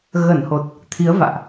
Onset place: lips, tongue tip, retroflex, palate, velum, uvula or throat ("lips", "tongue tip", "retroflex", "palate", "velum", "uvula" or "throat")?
velum